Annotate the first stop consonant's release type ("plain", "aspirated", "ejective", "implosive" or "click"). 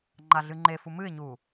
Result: click